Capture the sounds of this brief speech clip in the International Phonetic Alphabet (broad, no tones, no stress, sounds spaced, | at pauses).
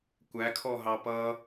kʷ æ kʰ ɔ ɦ ɑ p ʌ